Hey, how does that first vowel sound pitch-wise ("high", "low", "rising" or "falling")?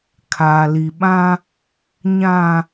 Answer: low